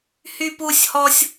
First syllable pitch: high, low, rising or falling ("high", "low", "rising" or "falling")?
high